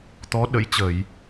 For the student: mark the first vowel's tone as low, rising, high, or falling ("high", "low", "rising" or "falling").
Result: rising